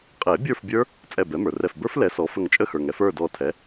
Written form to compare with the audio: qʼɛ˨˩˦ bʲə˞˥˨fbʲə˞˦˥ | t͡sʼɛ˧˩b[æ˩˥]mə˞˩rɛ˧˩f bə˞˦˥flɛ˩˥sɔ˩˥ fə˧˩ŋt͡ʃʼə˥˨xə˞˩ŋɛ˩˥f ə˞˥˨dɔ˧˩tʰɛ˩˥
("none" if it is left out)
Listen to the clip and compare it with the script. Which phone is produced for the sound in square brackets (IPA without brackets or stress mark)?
ɛ˩˥